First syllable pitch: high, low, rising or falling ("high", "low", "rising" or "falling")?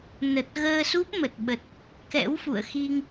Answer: low